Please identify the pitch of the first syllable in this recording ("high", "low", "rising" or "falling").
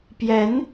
rising